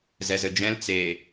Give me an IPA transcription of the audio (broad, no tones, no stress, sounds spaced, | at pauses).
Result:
z ɛ z ɘ d͡ʒ ɛ̃ l t͡s e